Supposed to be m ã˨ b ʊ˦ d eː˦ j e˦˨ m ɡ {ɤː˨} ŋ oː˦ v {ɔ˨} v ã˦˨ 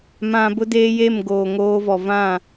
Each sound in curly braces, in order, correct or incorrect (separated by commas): incorrect, correct